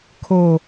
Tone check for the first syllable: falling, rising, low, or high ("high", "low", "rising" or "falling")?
high